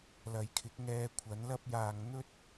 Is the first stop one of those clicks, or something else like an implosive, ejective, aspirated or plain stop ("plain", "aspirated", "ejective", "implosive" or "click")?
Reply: aspirated